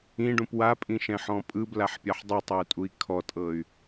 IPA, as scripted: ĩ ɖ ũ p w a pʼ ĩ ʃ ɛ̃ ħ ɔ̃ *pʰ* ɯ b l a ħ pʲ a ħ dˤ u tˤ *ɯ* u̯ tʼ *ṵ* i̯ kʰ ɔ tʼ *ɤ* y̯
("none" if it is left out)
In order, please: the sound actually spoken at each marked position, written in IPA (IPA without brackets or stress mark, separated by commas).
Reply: pʼ, ɯ, u, ɤ